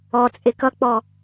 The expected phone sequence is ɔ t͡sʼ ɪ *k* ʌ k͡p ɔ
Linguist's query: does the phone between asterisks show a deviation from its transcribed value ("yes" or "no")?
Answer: no